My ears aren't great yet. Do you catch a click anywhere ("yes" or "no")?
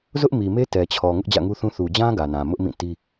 no